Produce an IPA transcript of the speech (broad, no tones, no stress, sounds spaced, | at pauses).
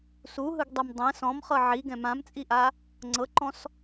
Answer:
s u ɦ ɯ ɡ dˤ e m dˤ ɛ̃ s ɔ̃ m χ ɤ ʕ i ɡ ɛ̃ m ã m t͡sʼ i ʔ a | ŋ͡ǀ ɤ ǃ ɔ̃ s